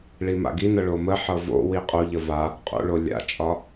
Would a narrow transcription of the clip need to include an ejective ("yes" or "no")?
yes